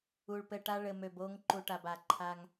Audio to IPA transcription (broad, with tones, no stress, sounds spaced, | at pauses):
u˨ ɭ p ɘ˨ ʈ a˦ ɭ ɘ˨ m ø˨ b o˦ ŋ ǃ u˨ ʈ a˨ b a˨ ǃʰ a˦ ŋ